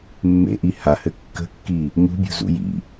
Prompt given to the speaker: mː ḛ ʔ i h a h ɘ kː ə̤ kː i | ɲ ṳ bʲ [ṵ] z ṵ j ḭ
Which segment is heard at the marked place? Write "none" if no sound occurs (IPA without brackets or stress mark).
ṳ